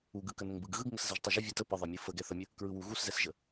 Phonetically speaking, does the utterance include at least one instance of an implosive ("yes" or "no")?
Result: no